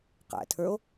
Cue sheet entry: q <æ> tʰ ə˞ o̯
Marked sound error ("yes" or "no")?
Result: yes